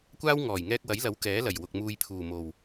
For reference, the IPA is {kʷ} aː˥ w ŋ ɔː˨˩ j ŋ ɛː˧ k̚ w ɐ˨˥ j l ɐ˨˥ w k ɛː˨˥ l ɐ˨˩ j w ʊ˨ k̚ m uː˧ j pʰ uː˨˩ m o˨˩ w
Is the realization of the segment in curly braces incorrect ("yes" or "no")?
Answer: no